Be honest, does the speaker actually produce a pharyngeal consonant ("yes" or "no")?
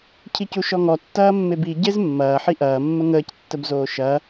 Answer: yes